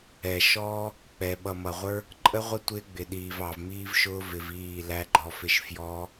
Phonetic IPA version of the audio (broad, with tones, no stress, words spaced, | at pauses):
ɛ˨ʃɔː˦ | k͡pɛ˨ɓʌ˨mʌ˨ʁʷə˞˦ | ǃʼə˦ʁʷɪ˦ tʷɪː˦ɡ͡bɪ˨ɗiː˨v ɑ˨vmiː˦vʃʊː˦ vɪ˧viː˦˨ læ˦ɡ͡ǃɔ˧fɪ˦ʃ fjɔː˦